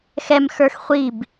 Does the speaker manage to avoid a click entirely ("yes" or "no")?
yes